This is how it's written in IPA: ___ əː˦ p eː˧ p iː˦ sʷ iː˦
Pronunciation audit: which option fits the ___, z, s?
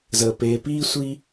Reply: z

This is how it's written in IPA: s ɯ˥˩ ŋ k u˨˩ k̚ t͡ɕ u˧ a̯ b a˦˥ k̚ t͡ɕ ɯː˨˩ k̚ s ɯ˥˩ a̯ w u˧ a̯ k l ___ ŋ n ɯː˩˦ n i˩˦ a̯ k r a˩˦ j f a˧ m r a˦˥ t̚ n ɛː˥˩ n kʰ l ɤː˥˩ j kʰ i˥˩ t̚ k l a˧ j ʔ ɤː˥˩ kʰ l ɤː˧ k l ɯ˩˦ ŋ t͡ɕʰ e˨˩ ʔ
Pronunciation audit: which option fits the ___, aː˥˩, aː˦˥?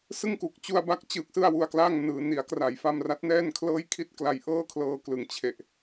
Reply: aː˥˩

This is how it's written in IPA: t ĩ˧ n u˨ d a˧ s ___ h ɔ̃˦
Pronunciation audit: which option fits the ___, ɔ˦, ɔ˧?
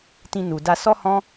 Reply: ɔ˦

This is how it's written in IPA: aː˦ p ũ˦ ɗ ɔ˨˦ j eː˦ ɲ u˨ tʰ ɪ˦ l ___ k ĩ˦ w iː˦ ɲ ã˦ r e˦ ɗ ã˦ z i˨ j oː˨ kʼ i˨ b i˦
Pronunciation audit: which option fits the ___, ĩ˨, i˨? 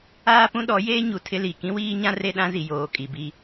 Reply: i˨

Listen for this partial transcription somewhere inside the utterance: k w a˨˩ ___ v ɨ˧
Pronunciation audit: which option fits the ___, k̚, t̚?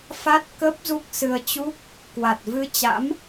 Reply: t̚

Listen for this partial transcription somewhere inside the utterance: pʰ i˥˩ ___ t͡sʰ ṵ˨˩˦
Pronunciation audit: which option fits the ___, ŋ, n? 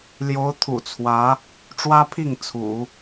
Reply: ŋ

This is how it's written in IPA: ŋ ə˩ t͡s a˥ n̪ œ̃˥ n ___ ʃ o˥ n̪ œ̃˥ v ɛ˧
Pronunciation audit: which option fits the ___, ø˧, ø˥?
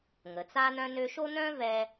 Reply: ø˥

